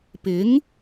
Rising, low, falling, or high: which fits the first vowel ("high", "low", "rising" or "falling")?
rising